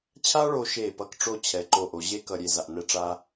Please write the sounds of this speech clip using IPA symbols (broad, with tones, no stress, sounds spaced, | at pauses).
t͡ɕʰ a˥ ɭ o˧ ʃ e˧˩ p ʌ˧ k ʈ͡ʂ o˧ t͡ɕʰ ɛ˩˧ ǃ o˧ ʔ o˩˧ ʑ e˥ k ʌ˧ ɾʲ e˧ z a˧ ʔ n ɛ˥˧ ʈ͡ʂ a˥